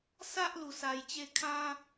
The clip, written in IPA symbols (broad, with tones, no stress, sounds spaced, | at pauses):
s a˦ ʔ l u˧ s a˧ j t͡ɕ e˦ kʰ ã˦